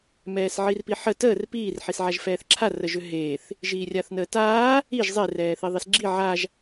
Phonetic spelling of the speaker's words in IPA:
m ɛː s ʕ i r p i ħ ə t əː r p iː r ħ i s ʕ a ʒ f ɛː θ ǁʰ a r ə ʒ ʏ ɦ eː θ | ʒ iː rʲ a θ n əː t aː | i ʒ zˤ e r ɛː θ i ðˤ i s ɡ͡ǁ i ʕ a ʒ

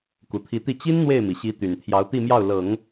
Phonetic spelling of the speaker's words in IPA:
k u˨˩ t̪ʰ i˧˥ t̪ i˥˩ t͡ɕ i˥ n n̪ w e˥˩ ɪ̯ m i˩ ɕ i˧˥ t̪ y˨˩ n t̪ʰ j ɑ˧˥ ʊ̯ t̪ i˥˧ m j ɑ˥˩ ʊ̯ l ɤ˨˩˦ ŋ

